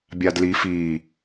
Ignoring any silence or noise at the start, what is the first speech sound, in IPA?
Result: bʲ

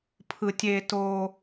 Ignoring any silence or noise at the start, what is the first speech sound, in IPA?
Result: pʰ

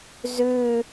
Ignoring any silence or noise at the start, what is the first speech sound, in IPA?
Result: z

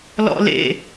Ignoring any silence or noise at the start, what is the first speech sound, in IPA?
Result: l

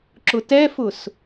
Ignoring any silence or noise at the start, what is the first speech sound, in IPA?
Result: ǁ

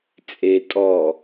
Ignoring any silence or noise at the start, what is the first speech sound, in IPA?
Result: t͡sʼ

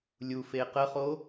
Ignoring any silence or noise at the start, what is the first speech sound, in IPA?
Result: lʲ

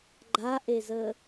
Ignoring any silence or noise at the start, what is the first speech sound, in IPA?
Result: ɡ͡ǃ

